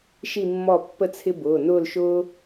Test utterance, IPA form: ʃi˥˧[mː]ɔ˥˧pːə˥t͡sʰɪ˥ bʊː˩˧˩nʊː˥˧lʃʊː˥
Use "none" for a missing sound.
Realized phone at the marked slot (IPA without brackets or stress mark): mː